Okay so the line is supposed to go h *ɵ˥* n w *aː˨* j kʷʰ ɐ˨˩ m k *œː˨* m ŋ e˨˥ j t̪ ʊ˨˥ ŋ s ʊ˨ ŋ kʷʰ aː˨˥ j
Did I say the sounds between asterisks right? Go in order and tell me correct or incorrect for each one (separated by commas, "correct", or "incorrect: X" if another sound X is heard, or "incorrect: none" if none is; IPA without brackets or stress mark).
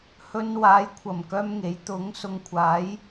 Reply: incorrect: ɵ˧, incorrect: aː˨˧, incorrect: œː˥